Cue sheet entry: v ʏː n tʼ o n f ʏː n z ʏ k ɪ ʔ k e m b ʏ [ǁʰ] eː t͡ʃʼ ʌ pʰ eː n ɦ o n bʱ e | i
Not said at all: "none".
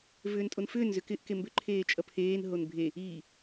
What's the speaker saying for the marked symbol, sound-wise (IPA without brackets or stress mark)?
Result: ǃʰ